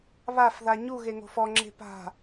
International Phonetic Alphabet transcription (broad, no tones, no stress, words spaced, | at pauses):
βafða ɲuɣeŋo̤f ɔŋ͡ǁe̤ pa̤